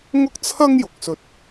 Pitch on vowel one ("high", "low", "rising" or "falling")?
high